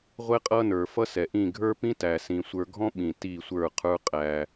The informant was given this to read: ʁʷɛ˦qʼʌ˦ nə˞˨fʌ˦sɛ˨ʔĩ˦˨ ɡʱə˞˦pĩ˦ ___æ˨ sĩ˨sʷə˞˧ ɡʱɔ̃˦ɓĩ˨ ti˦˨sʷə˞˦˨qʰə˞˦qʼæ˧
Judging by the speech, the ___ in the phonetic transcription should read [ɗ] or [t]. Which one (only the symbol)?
t